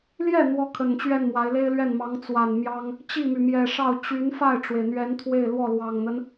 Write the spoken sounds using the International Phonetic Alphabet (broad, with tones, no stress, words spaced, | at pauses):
ljɛ˥˩ n̪wɔ˥kʰə˨˩nt͡ɕɥɛ˥˩nmwa˧˥ɪ̯ le˥ɪ̯lɥɛ˥˩nmɑ˧˥ŋ t͡swa˨˩nmjɑ˥ŋ | t͡ɕi˥˩my˩mjɛ˨˩ʂɑ˥˩ʊ̯ t͡ɕy˧˥n fa˥˩ɪ̯ʈ͡ʂwe˩ɪ̯n̪ɥɛ˧˥n t̪ʰwe˥˧ɪ̯lwɔ˥˩ lwɑ˨˩ŋn̪ə˦n